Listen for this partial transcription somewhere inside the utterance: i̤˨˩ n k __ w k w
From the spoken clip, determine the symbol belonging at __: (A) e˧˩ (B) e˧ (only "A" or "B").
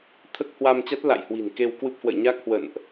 B